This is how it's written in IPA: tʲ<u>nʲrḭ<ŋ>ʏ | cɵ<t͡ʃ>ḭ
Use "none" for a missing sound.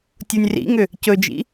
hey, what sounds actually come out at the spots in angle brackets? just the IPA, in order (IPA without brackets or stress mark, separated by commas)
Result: u, ŋ, d͡ʒ